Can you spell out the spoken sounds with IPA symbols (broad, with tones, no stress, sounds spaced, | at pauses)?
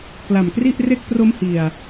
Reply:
k l a˨˩ m k r i˥˩ ʔ r e˦˥ k̚ p r o˦˥ m h i˧ a̯